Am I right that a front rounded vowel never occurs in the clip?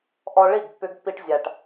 no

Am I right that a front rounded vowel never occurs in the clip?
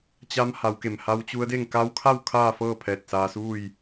yes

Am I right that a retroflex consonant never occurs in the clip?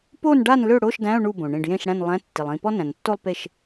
no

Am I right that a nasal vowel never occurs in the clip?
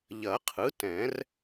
no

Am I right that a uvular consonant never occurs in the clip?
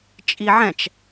yes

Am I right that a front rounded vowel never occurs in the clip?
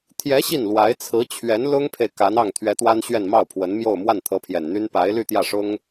no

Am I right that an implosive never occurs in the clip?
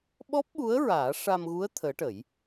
no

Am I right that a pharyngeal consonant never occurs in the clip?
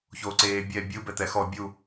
yes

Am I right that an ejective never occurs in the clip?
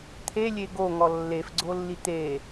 yes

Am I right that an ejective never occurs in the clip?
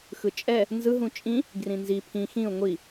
no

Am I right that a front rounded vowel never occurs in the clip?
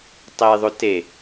yes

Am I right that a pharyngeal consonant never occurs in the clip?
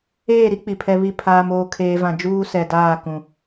yes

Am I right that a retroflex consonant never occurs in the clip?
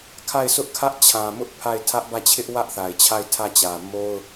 yes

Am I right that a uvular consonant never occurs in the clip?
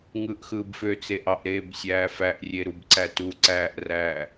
yes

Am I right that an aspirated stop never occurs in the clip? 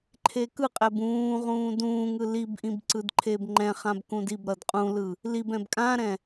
no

